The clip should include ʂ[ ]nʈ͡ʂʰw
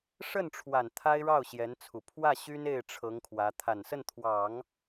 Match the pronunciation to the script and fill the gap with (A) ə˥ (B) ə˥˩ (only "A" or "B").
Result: B